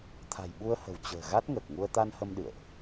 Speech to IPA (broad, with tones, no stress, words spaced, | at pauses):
t̪ʰa̤˨˩jɓu˧ə̯hə̤˨˩w t͡ɕə̤ː˨˩ ɣa˦˥t̚ŋəː˨˩k̚ŋu˧ə̯ t̪a˧nhə˧m ɗɨ̰˧˨ə̯ʔ